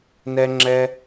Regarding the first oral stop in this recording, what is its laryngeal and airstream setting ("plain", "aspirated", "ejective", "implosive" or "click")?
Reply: click